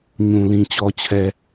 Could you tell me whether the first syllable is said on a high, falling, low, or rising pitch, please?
low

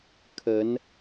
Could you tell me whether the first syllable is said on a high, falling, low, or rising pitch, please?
rising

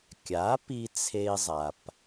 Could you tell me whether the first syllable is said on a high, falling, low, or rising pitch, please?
rising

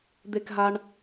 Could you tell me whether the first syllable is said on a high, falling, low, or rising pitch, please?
high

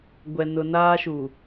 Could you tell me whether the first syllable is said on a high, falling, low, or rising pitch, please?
low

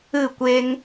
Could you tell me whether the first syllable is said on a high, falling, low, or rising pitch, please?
falling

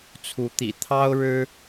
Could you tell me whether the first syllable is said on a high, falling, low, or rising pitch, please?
rising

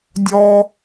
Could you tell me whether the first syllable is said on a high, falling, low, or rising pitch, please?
high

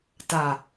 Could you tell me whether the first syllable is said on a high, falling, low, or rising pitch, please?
low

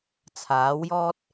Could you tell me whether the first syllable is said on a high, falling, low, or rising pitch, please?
rising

